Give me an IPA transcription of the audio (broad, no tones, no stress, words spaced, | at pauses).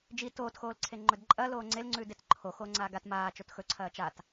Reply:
d͡ʒi toːtxoːlǀʰe ŋ͡ǃɵdǃʼɐ loːŋ͡ǀelŋ͡ǀʉːd etǃʰo xoːŋ͡ǀaːɡat maːt͡ʃot xɵǀʰɐː t͡ʃat